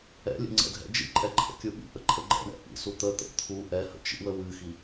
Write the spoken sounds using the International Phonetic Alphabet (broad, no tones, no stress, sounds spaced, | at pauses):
ɛ̰ lʲ ə̰ ŋ͡ǀ ɛ̰ dʱ ɛ̰ d͡ʒ ḭ ǃʼ ɛ ǃʰ ə̰ kʲ u ɓ ḭ ʔ ə ǃʼ ə ɡ͡ǃ ɛ̰ ɳ ɛ̰ ʔ ḭ s u t̪ ə t̪ ə̰ t̪ʰ u ʔ ɛ h ə̰ t͡ʃ ḭ w ə w ɨ x i